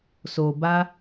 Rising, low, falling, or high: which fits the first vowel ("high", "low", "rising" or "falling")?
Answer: low